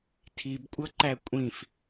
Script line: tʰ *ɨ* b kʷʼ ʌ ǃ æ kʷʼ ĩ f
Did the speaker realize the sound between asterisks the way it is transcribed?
no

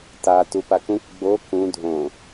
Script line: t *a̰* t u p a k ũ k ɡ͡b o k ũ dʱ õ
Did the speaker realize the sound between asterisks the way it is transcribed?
no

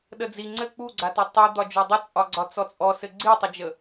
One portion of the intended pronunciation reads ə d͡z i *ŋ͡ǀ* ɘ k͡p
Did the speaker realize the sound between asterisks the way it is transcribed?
yes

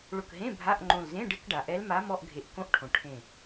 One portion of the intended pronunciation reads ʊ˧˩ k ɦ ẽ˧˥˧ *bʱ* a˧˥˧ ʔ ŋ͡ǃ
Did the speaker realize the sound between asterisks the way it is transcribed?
yes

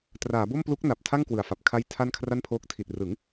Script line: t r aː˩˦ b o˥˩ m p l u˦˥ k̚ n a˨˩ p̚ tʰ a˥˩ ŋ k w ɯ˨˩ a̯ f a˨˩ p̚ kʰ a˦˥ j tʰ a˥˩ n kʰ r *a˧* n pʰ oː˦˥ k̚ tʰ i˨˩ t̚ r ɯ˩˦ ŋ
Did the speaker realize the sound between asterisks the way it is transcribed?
no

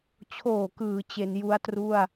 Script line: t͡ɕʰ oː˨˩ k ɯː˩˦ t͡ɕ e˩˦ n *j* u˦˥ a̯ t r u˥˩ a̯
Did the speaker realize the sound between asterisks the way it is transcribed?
yes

